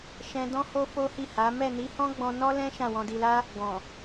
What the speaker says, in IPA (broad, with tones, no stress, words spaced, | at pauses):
ʃɛ̃˧ dɔ̃˦ho˦ fo˦hi˦˨ha˨˦ mɛ˦˨ni˨˦hɔ̃˦ɡ͡bɔ̃˧ nɔ˦lɛ̃˦ ʃã˦˨wɔ̃˧di˧la˦ | ɡɔ̃˨